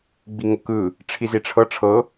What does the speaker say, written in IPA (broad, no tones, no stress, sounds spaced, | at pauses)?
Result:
ɡ͡b i ŋ ɤ k ɯ | ʈ͡ʂʰ i z i ʈ͡ʂʰ ɤ ʈ͡ʂʰ ɤ